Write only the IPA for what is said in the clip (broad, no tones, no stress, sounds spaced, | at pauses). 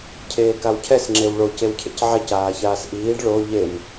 cʰ eː k a w cʰ ɛ s ŋ͡ǁ e w ɭ o c e w cʰ ḛ c ʕ ɛ c aː ç aː s ʔ iː ɖ ɭ o ʎ e m